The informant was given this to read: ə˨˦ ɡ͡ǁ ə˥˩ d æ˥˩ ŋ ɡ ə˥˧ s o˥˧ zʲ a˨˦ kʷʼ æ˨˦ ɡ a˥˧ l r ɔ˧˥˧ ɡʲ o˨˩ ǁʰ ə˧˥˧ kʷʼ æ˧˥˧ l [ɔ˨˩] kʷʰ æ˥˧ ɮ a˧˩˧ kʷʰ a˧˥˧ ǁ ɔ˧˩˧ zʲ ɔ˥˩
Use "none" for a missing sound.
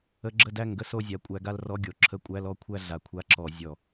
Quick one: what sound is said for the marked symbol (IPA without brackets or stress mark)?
ɔ˥˩